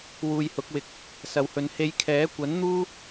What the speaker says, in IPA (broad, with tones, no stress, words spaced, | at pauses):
wuː˧jhʊ˨˥k̚wɪ˨k̚ | sɐ˨whɵ˨˧n he˨˧jkʰɛː˨˥kʷɐ˨˥nn̪uː˥